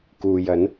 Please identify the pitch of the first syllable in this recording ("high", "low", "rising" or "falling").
low